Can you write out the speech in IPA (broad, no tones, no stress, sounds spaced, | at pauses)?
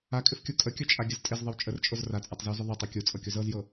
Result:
a kʼ ɪ f kʲ u kʼ ə kʲ ɵ t͡ʃʼ a ɡʲ ə z tʼ ɪ z ðˤ ɪ w t͡ʃʼ ə r t͡ʃʼ o z r a t͡sʼ a tˤ z ɪ w z ʏ ðˤ ɛ tˤ u kʲ u t͡sʼ ɤ kʲ o z ɤ z j ɤ